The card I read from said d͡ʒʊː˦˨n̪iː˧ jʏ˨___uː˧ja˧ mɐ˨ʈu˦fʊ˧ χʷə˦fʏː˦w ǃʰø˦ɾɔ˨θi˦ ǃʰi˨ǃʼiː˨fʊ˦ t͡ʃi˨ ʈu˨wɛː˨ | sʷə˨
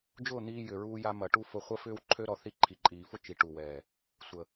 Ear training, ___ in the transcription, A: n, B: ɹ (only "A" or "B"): B